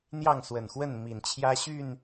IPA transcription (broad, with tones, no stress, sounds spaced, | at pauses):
n̪ j ɑ˥˨ ŋ s w ə˨˩ n x w ə˥˨ n m i˨˩ n t͡ɕʰ j ä˦ ɕ y˥˨ n